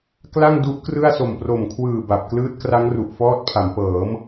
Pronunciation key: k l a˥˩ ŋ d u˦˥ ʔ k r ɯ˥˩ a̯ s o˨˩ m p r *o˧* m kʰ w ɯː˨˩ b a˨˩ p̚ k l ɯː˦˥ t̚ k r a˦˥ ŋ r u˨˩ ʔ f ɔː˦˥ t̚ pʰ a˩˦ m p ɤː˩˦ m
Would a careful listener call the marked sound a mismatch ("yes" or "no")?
yes